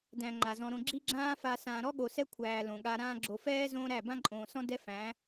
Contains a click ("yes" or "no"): yes